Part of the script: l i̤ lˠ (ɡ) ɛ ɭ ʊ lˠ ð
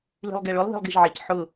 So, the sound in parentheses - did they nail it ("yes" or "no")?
yes